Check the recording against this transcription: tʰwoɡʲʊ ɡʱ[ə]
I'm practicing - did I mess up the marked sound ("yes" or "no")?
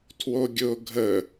no